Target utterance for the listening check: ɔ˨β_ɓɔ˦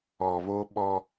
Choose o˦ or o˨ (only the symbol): o˦